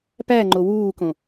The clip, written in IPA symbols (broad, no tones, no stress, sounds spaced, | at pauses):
p æ ŋ͡ǃ o w uː k õ